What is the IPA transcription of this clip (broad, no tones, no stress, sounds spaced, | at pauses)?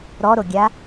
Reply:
ɾ ɔ ɾ o ɡʲ a